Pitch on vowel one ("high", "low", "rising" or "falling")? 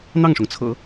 falling